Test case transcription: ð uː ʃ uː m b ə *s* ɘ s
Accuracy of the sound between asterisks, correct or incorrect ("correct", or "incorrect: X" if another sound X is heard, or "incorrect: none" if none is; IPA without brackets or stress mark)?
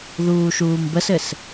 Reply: correct